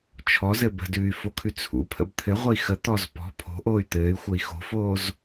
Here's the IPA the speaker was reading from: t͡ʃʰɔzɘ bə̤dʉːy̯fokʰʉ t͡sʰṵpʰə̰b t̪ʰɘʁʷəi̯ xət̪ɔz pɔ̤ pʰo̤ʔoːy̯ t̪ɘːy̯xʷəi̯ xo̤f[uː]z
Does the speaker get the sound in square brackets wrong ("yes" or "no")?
yes